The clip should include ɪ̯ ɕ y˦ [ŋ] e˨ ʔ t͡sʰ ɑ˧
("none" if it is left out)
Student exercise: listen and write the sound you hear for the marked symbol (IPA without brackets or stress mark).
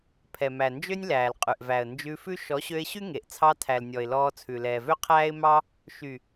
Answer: ŋ